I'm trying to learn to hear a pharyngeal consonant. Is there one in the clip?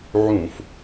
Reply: yes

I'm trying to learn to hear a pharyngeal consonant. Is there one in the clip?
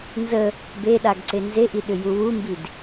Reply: no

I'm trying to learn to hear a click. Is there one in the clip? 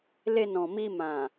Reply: no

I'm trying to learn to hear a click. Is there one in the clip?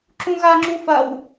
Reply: yes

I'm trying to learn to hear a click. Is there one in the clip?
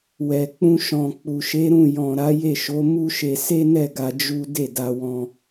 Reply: no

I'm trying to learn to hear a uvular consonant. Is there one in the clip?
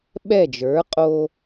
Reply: yes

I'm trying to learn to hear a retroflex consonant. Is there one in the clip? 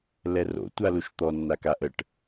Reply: yes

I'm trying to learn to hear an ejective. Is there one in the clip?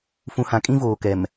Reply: yes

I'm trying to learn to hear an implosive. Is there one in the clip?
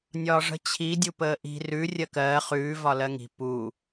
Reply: no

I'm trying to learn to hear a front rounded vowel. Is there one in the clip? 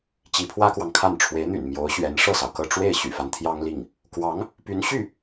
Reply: yes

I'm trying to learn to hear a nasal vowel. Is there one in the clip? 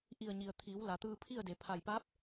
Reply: no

